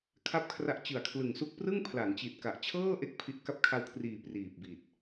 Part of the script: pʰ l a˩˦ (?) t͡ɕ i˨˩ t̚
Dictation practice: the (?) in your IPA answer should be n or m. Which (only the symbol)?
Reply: n